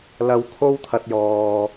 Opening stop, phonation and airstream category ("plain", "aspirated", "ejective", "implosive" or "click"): aspirated